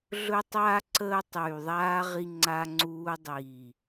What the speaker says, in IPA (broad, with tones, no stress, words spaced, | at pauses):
ɮɵ˦tˤaː˦ ǀəː˦tˤyː˨ðˤaː˦ ʁi˦ŋ͡ǀa˦ŋ͡ǀuː˦ dˤiː˨